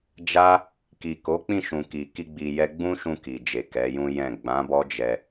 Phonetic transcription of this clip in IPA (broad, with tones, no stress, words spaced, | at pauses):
d͡ʒa˦ | ki˨ko˨˦k͡pĩ˦˨ʃũ˨ ki˨ ki˧ ɡ͡bi˧jɛ˦ ɡ͡bũ˦ʃũ˧ ki˨d͡ʒe˨ kɛ˨˦jũ˦jɛ̃˦˨ ɡ͡bã˨˦bɔ˦d͡ʒɛ˧